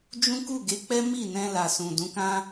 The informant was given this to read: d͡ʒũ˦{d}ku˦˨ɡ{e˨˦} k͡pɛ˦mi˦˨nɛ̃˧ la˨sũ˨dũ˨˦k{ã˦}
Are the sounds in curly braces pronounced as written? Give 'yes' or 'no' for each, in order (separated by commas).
no, yes, yes